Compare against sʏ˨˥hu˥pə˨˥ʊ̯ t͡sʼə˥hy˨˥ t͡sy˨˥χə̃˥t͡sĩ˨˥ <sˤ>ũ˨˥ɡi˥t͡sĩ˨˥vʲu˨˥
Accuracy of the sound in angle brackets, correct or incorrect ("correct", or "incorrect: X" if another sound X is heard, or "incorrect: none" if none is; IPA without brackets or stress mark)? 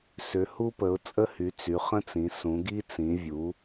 incorrect: s